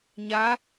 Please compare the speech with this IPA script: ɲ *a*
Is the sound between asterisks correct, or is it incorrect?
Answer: correct